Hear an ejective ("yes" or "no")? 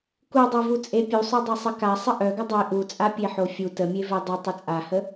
yes